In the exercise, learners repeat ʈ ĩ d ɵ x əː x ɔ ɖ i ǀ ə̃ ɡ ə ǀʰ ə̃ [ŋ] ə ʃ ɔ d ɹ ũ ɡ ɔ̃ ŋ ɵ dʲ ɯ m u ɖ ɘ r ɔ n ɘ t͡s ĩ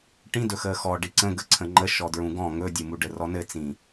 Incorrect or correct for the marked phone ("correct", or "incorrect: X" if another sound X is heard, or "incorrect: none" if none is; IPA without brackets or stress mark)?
incorrect: ŋ͡ǃ